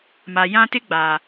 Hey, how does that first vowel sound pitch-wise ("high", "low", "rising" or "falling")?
low